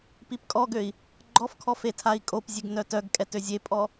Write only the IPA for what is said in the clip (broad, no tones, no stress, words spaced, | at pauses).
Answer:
pipkʼɔɡøi̯ | ɡ͡ǃɔfkʰɔ fetʰai̯kʼopzʲeɡ nœtœɡkʼɛt øzʲepʼɔ